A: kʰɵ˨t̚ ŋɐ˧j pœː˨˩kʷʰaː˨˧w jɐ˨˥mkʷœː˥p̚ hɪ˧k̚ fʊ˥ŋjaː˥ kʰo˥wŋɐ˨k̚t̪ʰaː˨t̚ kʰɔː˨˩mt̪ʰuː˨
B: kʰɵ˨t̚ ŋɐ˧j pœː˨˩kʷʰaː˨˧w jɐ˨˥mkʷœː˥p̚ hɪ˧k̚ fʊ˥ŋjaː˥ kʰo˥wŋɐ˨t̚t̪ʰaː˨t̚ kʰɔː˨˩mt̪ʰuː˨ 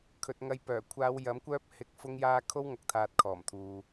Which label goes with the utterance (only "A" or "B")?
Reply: A